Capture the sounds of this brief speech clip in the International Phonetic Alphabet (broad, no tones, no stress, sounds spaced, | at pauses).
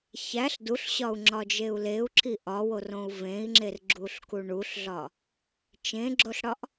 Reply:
ç æ ɬ d u ɬ ɕ ɒ u̯ ŋ͡ǁ ɒ d͡ʒ e u̯ l e u̯ ǁ i ʔ ɒ w o r õ u̯ v ẽ i̯ ŋ͡ǁ e r ɡ͡ǁ u ɬ k u ɳ u ɬ ɮ ɒ | t͡ʃ ẽ ɡ͡ǁ o ɬ ɽ ɒ ʔ